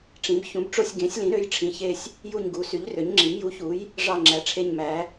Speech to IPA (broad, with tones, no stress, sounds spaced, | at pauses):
ʈ͡ʂ ĩ˩˥ b ç ũ˩˥ b ʈ͡ʂ o˦˨ sʲ ɡ ẽ˩˥ sʲ l ĩ˩˥ ɾ ø˩˥ j ʈ͡ʂʰ ĩ˩˥ ç e˦˨ sʲ | j u˦˨ ɲ ɡ u˩˥ s y˩˥ ʎ r ø˩˥ ɲ ŋ͡ǁ i˩˥ m j u˩˥ ç u˩˥ j | ʐ ɑ˦˨ ŋ͡ǁ æ˩˥ ʈ͡ʂʰ e˦˨ ɲ m æ˩˥